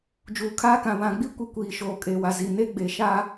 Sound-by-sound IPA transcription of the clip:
d͡ʒ uː˨ kʰ aː˦ k ã˨ β ã˨ ɡ͡b i˦ kʷ i˨ kʷ iː˨ ʃ oː˨ kʼ eː˨ w a˨ z i˨ n e˦ ɡ͡b e˨ ʃ a˦

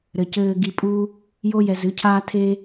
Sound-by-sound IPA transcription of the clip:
ɾ ɘ˨ c ɘː˧ ɡ i˧ pʼ u˦ | j o˦ j ɛ˧ z ɨ˨˦ cʰ aː˦ tʰ e˦

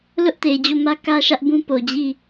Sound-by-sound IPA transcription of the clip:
l ʊ˦ ʔ t e˨ ɪ̯ d͡ʑ o˦˨ m ä˦ k ä˦ ʃ ä˦ ʔ b ũ˦ p o˨ d͡ʑ i˦˨

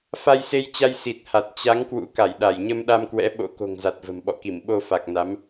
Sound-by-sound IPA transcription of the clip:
f a˧ j s e˧ j t͡ɕ a˧ j s i˨˩ t̚ h a˨˩ t̚ t͡ɕ a˨˦ ŋ k w ṵ˧˥ k a˧˩ j ɗ a˧˩ j ɲ ə˧ m ɗ a˧ m k w ɛ̰˧˥ ɓ o̰˧˥ k o̤˨˩ ŋ z a˨˩ t̚ v ə̤˨˩ m ɓ ɔ̰˧˨ k i˧˩ m ɓ o˧ f a˨˩ k̚ n a˨˦ m

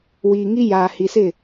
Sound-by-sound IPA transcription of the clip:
w iː˨ ŋ i˦ j aː˨ h i˨ s ɪ˦˨

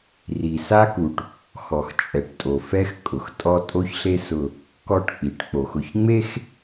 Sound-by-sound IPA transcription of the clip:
r i˨ s a˦ k u˨ ʈ | x ɔ˨ x t͡ʃʼ ɛ˨ ʈ tʼ o˨ f ɛ˦ x kʼ ʊ˨ x tʼ ɔ˦ tʼ o˦ ç ɬ e˦ s ʊ˦ | k ɔ˦˨ ʈ k͡p i˨ ʈ k͡p o˨ x ʊ˨ ç ŋ͡m e˦ x

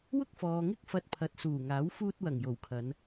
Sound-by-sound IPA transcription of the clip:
w ʊ˥ k̚ f ɔː˨ ŋ ɪ˥ k̚ f ɐ˧ t̚ pʰ ɐ˨˥ t̚ s uː˨˩ ŋ aː˨˥ w f uː˧ t̚ w ɐ˨˩ ŋ j o˨˩ w kʰ ɐ˨˧ n

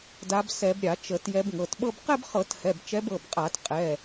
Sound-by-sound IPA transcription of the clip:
d a˨˦ b s ɛ˧˩˧ b ɾʲ a˧˩˧ t͡ʃ ə˧˩˧ t j ɛ˨˦ b ŋ ɤ˩˧˩ t ɓ ɤ˥˧ b q ɛ˥˧ b χ ɤ˧˩˧ t h ɛ˩˧˩ b t͡ʃ ɛ˨˦ b ɤ˩˧˩ b qʼ a˧˩˧ t qʼ ɛ˩˧˩

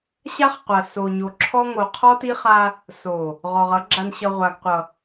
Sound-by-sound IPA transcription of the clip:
ɕ a˦ χ qʷ a˨ s o˨ ɲ o˨ ǁʰ ɔ˦ ŋ o˨ qʰ ɔ˦ t i˦ χ a˦ | s o˨ | ʁ ɔ˨ ʁ ʌ˨˦ ɡ͡ǁ a˨ n ɕ ʌ˨ ʁʷ a˨ ɡ qʷ ʌ˨

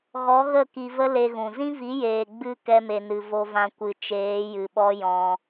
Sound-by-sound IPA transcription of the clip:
ɣ ɔ˨˦ ɣ ə˦˨ k i˧ v ə˦ l e˧ ɣ ũ˨ z ĩ˦ v i˨˦ j eː˨ ɡ͡b ɨ˧ k ɛ˦ m e˧ n ɨ˧ v o˦ v ã˦ kʷ ɨ˧ t͡ʃ eː˨˦ j ɨ˨ ɓ ɔ˦ j ɔ̃˧

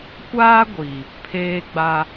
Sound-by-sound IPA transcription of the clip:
kʷ aː˦ ɡʷ iː˨ | pʰ eː˦ ɡ͡b a˦

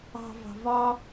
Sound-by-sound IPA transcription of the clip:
ɑ̤ v ɑ̤ v ɒ

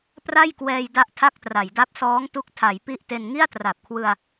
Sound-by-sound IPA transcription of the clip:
p r a˥˩ j k w ɛː˧ j d a˥˩ ʔ tʰ a˥˩ k̚ t r a˩˦ j d a˦˥ p̚ s ɔː˦˥ ŋ t u˦˥ k̚ tʰ a˩˦ j p i˥˩ ʔ t e˧ n ŋ i˥˩ a̯ t r a˨˩ p̚ kʰ w ɯ˧ a̯

